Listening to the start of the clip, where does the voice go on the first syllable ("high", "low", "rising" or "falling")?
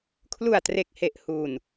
low